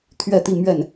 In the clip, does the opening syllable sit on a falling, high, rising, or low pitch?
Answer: falling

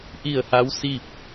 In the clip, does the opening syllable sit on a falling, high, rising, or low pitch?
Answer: falling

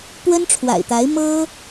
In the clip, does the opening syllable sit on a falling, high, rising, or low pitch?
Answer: high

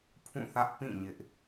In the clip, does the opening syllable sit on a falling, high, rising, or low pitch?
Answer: falling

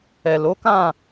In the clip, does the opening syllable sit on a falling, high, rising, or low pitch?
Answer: low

